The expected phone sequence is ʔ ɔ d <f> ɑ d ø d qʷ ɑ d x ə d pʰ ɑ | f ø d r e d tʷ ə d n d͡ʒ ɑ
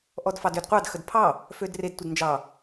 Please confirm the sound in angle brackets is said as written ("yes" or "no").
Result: yes